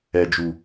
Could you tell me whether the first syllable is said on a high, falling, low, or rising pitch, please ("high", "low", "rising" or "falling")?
low